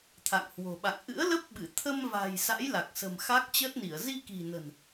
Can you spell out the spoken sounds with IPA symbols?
t̪ʰ a̰˧˨ ŋ h w o̤˨˩ ɓ a̰˧˨ ŋ ʔ ɨ̰˧˥ ə̯ l ə˦˥ p̚ ɓ ɨ˧˩ t̪ʰ ə˧ m v a̤˨˩ j s a̰˧˥ j l a˨˩ k̚ s ə̤˨˩ m x a˦˥ k̚ t͡ɕ əː˦˥ t̚ n i˧˩ ə̯ z i˧ k i̤˨˩ n ə̤˨˩ n

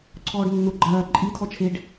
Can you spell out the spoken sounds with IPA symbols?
ǀʰ ɔː ɖ nː ʊ ɡ͡ǃ ɐː ǃʼ i tʰ ɔ t͡ʃʰ e ɖ

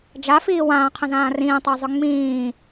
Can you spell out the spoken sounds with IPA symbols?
d͡ʒ a f iː w ãː qʰ ə̃ z ãː r ĩː tˤ a zˤ ʏ ŋ͡m ĩː

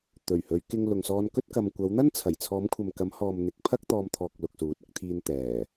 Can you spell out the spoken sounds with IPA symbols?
t̪ ɵ˨˩ ɥ h ɵ˨˧ ɥ k ɪ˧ ŋ l ʊ˨ ŋ s ɔː˧ n k ɵ˥ t̚ k ɐ˨ m kʷ ɐ˨˧ w n̪ ɐ˥ n t͡sʰ ɐ˨˩ j t͡sʰ ɔː˨˧ m kʷʰ ɐ˨ m k ɐ˨˧ m h ɔː˨ m n̪ ɪ˨˥ k̚ pʰ ɐ˥ k̚ t̪ ɔː˧ m t̪ʰ ɔː˨ k̚ l ʊ˨ k̚ s uː˨˥ t̚ ɪ˧ k̚ t̪ʰ iː˧ n t̪ ɛː˨˩

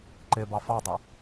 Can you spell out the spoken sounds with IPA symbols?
ǃ ɪ b ɑ f ɑ dˤ ɪ

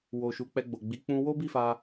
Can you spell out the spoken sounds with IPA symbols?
w o˧ ʃ u˧ k͡p ɛ˧ ɡ͡b o˨ ɡ͡b i˨˦ k͡p ũ˧ w o˦ b i˦˨ f a˧

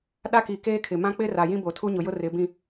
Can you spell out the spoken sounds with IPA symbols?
ɗ a˦ k i˨ k eː˦ kʰ ɪ˨ m ã˦ k͡p ɪ˦ r a˨ j ĩ˦ b o˨ tʰ u˦ ɲ ʊ˨ j ʊ˦ r ɪ˨˦ b ĩ˦

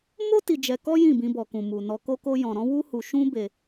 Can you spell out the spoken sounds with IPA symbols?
m o˦ t i˧ d͡ʒ ɛ˧ k ɔ˦ j ĩ˦˨ b ĩ˧ b ɔ˨ k ũ˨ m u˨ n ɔ˧ k o˦ k o˦ j ɔ̃˧ ɾ ɔ̃˦ w u˦ h u˧ ʃ ũ˦ b e˧

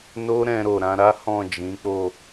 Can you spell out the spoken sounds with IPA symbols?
n o˦ ɾ ɛ̃˧ ɾ o˨ ɾ ã˨˦ ɾ a˦ h ɔ̃˦˨ d͡ʒ ĩ˨˦ k͡p o˦˨

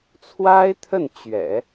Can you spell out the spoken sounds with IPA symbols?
t͡sʰ w a˥ ɪ̯ t̪ʰ ə˥˩ n t͡ɕ ɥ ɛ̰˨˩˦

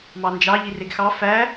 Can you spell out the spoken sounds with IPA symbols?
m ɑ n d͡ʒ ɑ ʎ i r e ɡ x ɑ f æ

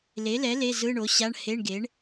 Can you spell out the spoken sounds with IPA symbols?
l e˩˥ l ɛ˩˥ l e˧˥˧ z ɯ˧˥˧ ɳ o˩˥ ɕ a˧˥˧ ɳ h e˧˥˧ ɳ ɡ e˩˥ ɳ

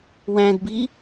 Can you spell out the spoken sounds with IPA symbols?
w æ̃ d b i

